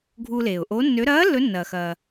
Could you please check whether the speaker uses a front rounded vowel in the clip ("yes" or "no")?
yes